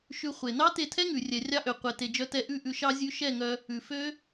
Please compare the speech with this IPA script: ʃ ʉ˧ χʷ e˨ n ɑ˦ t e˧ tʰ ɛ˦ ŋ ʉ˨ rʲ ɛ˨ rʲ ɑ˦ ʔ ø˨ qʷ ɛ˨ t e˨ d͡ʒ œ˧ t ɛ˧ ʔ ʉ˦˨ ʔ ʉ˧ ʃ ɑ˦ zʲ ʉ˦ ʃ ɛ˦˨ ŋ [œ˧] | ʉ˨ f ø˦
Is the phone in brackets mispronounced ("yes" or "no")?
no